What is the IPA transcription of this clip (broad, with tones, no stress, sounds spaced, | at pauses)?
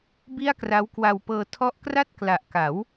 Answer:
b i˥˩ a̯ k r a˦˥ w k w a˧ w p ɤː˧ tʰ ɔ˦˥ ʔ k r a˥˩ t̚ k l a˨˩ ʔ k a˩˦ w